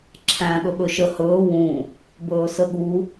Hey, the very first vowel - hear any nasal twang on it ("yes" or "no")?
yes